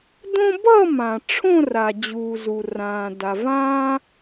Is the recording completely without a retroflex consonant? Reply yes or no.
no